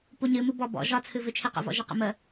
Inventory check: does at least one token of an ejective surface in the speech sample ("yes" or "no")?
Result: no